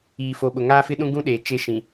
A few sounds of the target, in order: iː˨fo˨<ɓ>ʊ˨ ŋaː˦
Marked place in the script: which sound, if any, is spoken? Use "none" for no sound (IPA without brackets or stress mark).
ɓ